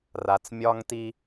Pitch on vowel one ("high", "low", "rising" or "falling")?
low